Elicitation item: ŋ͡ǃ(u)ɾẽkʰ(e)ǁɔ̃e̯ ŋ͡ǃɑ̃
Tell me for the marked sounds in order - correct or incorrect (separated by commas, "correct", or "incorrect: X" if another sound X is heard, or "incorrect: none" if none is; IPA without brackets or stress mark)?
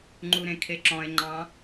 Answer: correct, correct